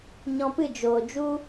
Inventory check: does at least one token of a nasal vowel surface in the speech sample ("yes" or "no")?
yes